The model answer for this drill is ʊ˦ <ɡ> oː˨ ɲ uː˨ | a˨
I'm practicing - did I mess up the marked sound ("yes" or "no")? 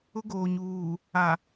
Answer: no